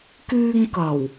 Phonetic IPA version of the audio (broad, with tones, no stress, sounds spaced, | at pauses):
k yː˧ ŋ k ɐ˨˩ w